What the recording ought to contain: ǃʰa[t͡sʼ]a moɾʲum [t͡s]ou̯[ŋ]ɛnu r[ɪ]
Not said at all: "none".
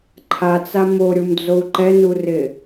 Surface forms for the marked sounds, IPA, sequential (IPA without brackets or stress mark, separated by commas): t͡s, d͡z, ǃ, ɪ